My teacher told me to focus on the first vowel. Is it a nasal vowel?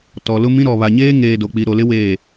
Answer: no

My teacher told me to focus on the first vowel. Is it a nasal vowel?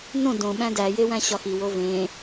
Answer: yes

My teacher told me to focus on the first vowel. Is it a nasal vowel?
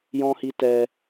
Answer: yes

